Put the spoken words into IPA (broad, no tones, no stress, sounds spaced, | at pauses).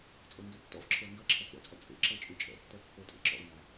t͡sʼ ɤ ŋ ɡ ɛ tː ɔ̰ v ǁʰ ə˞ ŋ ɡ ɐ ǁʰ ɐ k ɛ̰ t͡sʼ ɐ t͡sʼ ḛ ǁ ɤ t͡ʃʼ y t͡ʃʼ ɛ̰ tː ɛ kː ə˞ tʼ ḛ ǁ ɔ̰ u̯ n a